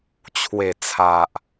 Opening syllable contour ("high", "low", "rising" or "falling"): low